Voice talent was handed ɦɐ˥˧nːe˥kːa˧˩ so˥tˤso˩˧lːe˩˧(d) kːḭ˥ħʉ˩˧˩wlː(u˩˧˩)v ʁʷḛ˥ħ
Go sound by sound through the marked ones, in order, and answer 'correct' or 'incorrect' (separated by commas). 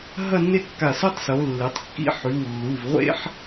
incorrect, correct